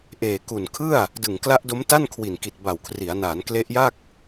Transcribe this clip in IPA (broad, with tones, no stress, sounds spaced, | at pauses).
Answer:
ʔ eː˨˩ k u˨˩ n kʰ ɯ˥˩ a̯ | d ɯ˨˩ ŋ k l a˦˥ ʔ d o˦˥ m t a˥˩ n kʰ w i˨˩ n k i˨˩ t̚ b a˨˩ w kʰ r i˩˦ a̯ n aː˩˦ n k l e˦˥ ʔ j a˥˩ k̚